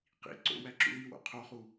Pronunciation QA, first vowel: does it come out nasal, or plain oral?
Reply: oral